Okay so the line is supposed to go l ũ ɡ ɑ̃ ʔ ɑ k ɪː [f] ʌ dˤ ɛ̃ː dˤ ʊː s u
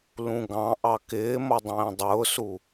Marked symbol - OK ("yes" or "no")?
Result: no